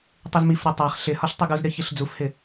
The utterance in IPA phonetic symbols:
tˤ e z m i f ɾʲ a tˤ a χ ɬ ɪ h ɒ ɬ tˤ i ɡ u z ɾʲ ɒ ç i ɬ d͡z u f h ɪ

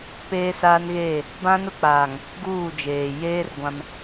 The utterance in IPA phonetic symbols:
p eː˦ s aː˦ n ɣ eː˦˨ | b ã˦ n ʊ˦ k͡p aː˨ ŋ | ɡ uː˦˨ d͡ʒ eː˨ j eː˦ r ɡʷ ã˦ m

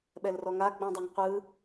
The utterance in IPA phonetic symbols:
ɓ ɛ l r ɔ ŋ a ɡ͡b õ dˤ e ŋ qʷ ɯ

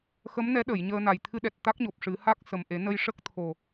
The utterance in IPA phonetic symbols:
x ə˧˥ m n ɛ˧˥ ɗ ə˨˩˨ j ɲ əː˧ n a˨˩ j t̪ʰ ɨ˧ ɗ ɛ˨˩ t̚ t̪ a˦˥ k̚ ɲ o˨˩ p̚ ʂ ɨ˨˩˦ h a˦˥ k̚ s ə˨˩ m ʔ e˨˩˦ n ə˧ j ʂ ə˦˥ k̚ t̪ʰ o˨˩

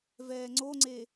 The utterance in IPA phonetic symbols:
v ɛː ŋ͡ǀ o ŋ͡ǀ e

